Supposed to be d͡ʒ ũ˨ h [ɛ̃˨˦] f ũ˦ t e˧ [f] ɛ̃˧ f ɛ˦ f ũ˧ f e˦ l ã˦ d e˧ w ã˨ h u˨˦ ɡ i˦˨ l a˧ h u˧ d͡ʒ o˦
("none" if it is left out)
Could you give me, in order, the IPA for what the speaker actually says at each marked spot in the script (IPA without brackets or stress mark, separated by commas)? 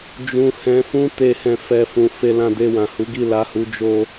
ɛ̃˨˦, h